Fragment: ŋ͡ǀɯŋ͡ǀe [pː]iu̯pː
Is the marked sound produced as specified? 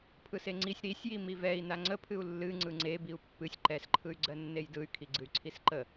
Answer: no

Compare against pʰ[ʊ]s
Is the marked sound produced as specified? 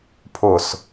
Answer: yes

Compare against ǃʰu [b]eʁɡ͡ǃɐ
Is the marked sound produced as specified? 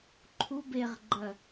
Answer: yes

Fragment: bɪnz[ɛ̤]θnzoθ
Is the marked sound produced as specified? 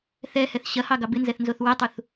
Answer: no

